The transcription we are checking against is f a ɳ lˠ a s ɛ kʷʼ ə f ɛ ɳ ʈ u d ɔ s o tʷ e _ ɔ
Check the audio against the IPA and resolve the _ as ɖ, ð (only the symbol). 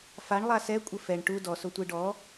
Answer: ɖ